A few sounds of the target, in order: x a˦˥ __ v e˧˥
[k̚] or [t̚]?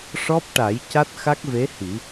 k̚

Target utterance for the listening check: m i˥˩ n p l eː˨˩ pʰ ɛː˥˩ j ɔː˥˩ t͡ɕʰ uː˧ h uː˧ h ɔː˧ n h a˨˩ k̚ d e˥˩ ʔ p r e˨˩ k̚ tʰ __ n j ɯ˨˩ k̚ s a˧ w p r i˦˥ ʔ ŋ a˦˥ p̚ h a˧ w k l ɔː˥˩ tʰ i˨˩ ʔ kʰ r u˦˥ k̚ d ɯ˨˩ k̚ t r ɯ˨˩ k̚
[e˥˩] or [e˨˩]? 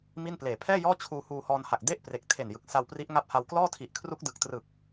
e˨˩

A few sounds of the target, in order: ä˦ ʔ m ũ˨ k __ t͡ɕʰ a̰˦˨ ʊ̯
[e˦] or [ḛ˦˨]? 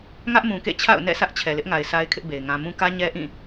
ḛ˦˨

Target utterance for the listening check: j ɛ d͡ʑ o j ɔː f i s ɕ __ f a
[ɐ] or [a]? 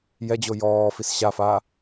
a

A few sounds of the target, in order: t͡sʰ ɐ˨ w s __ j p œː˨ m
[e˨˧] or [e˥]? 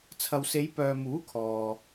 e˨˧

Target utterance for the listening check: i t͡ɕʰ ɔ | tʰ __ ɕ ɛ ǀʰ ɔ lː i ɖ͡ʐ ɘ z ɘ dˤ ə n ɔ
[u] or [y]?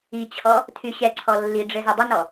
y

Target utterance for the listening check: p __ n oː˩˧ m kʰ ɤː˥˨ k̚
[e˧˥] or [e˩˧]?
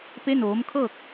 e˧˥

